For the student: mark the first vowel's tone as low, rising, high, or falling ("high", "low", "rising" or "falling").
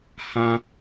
high